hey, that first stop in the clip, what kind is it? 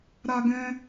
plain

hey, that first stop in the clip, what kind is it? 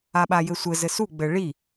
implosive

